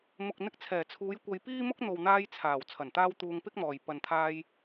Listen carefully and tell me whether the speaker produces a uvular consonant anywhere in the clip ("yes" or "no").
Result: no